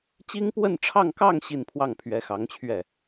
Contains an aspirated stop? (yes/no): yes